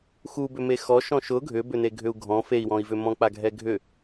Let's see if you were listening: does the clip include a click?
no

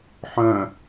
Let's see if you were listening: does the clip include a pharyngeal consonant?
yes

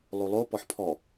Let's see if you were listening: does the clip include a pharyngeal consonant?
yes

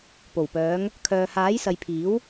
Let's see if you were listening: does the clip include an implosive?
no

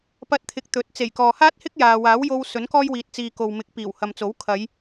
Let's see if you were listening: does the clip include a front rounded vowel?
no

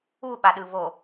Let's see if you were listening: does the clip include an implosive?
yes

